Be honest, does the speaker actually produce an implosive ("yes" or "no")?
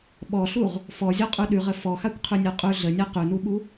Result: yes